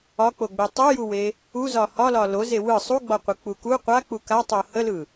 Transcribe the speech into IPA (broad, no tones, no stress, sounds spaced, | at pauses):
ɒ k͡p o ɡ͡b e tˤ u j u w e | u z ɒ h ɒ l ɒ l o z e w ɯ sˤ u ɡ͡b ɒ qʷ ɯ k͡p u k u qʷ a k͡p u k a tˤ o h ə l ɯ